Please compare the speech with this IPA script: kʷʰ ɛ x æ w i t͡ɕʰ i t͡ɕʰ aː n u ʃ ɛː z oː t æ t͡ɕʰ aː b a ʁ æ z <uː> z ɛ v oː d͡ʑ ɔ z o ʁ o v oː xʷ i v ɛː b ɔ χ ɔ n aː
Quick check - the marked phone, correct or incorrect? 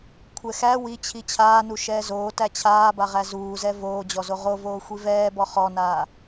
correct